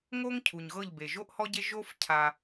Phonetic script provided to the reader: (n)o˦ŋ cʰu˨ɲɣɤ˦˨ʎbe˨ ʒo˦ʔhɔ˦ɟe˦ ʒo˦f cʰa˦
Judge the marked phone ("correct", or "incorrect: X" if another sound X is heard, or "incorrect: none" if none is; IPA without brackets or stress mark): incorrect: ŋ